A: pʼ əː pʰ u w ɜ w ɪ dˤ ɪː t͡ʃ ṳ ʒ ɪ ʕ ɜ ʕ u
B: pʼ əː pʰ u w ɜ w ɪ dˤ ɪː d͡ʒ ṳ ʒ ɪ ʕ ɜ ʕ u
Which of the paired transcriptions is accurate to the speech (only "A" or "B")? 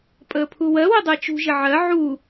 A